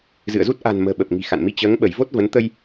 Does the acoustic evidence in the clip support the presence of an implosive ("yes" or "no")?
yes